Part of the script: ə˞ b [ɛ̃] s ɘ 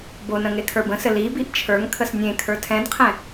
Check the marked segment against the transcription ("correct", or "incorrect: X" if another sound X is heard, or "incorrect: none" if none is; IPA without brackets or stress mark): incorrect: ə̃